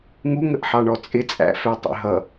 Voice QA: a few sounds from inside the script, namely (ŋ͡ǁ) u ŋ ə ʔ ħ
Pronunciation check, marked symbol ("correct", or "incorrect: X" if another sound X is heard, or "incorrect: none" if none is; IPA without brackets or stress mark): incorrect: ŋ